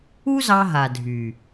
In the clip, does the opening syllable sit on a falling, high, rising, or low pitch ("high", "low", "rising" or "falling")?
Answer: high